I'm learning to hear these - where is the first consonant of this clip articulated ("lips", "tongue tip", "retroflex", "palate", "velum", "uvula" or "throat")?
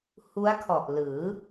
throat